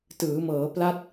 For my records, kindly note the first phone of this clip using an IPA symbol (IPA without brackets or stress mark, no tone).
t